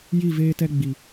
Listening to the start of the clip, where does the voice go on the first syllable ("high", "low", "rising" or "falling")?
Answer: falling